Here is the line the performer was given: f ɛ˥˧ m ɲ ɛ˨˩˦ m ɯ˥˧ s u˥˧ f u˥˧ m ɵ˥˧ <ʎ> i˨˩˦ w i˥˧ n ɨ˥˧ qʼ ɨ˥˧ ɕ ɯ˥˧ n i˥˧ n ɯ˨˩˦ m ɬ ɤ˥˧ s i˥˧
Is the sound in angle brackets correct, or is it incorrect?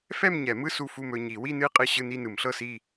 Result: incorrect